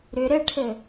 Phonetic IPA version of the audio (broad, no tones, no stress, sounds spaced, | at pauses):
ɾ ʏ ɾ ɘ ʈʰ ɘ